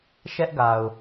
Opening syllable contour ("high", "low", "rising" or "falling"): high